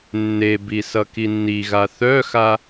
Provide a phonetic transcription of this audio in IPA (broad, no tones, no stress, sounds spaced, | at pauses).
nː e b i s ʌ k i nː i ɣ a θ œ x a